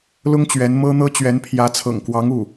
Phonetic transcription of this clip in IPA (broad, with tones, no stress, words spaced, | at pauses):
lʊ˥ŋt͡ɕɥɛ˧˥nmɤ˥n̪ɤ˥ t͡ɕɥɛ˧˥npʰjä˧˥ t͡sʰɤ̰˨˩ŋkwɑ˧˥ŋu˥˩